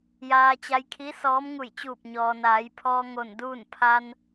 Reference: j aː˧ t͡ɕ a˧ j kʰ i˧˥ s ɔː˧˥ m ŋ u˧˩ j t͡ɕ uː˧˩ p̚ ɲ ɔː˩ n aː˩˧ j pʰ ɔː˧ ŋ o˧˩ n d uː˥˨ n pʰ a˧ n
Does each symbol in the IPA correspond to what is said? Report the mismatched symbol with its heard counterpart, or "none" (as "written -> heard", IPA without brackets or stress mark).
none